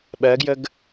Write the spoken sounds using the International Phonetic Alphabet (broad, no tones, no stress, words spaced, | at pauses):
ɓɜɡjəɡ